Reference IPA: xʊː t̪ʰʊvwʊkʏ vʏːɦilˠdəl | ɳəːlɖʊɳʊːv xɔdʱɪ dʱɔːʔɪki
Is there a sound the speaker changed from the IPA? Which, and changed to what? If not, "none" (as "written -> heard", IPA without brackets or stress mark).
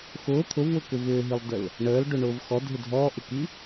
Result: none